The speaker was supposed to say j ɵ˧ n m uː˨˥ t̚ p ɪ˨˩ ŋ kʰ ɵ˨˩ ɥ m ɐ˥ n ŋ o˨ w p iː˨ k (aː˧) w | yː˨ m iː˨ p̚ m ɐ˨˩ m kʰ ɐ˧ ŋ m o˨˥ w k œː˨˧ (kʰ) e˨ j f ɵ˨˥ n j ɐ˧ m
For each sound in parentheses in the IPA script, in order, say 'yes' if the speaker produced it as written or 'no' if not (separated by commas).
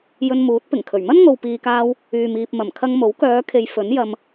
yes, yes